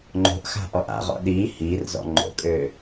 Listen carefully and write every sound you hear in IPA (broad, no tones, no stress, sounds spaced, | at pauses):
ŋ͡ǃ o̤ ʔ x a̤ ʔ ɔ ʔ a̰ ʁ ɔ̰ ɗ iː h iː r z ɔ̰ ŋ͡ǃ o̰ kʼ øː